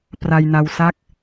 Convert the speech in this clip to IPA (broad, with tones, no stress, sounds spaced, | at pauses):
p r a˧ j n a˧ w s a˥˩ k̚